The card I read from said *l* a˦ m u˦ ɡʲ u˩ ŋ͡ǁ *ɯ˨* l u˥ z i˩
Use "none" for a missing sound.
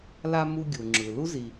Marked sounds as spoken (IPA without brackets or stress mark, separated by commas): l, ɯ˩